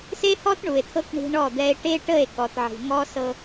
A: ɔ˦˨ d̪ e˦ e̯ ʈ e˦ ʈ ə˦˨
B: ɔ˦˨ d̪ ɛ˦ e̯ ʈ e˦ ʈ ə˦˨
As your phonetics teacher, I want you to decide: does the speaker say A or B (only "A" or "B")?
B